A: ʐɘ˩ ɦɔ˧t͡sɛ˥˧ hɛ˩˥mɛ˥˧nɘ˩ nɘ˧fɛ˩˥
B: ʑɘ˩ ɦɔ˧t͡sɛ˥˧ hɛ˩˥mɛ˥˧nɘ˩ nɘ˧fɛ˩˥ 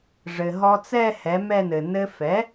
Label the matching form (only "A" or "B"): A